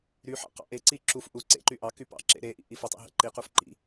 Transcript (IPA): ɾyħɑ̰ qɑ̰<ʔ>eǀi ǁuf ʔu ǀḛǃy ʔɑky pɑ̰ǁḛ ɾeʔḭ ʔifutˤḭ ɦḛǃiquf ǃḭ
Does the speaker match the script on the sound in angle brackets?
yes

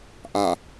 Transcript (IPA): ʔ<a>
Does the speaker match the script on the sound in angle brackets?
yes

